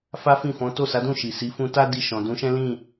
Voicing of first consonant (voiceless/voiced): voiceless